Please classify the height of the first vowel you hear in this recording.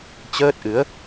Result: mid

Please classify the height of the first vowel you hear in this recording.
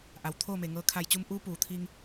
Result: low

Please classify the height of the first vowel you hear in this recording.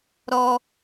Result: mid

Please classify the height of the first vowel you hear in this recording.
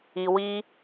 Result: high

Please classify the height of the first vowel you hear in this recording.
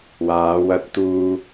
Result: low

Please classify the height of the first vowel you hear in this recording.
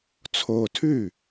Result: mid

